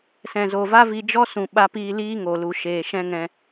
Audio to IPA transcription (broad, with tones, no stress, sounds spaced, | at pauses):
s ɛ̃˨ z o˨ v a˦ v i˧ d͡ʒ ɔ˦ s ũ˨ ɓ a˧ p iː˧ l iː˦ ŋ o˨ l u˨ ʃ eː˨ ʃ ɛ̃˦ ŋ ɛ̃˧